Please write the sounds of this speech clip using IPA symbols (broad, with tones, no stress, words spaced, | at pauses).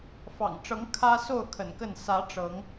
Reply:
fɑ̰˨˩ŋ ʈ͡ʂɤ˨˦ŋ kʰä˦ so˥˨ʊ̯ kʰə̰˨˩nkə˥˨n sä˨˦ ʈ͡ʂɤ˨˦ŋ